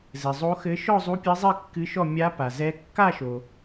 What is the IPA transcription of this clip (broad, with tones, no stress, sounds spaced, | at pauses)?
z ɘ˨ zˤ o˧˥ x ɘ˧˥ ʃ ɔ˥˧ zˤ u˧˥ pʲ ɘ˧˥ zˤ i˥˧ kː ɨ˧˥ ʃ ɔ˥˧ mʲ a˧˥ p a˨ z ɛ˧˥ kː a˥˧ ʃ o˨